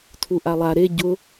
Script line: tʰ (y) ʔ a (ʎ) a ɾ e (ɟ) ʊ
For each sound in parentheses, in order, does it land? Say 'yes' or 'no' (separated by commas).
no, no, yes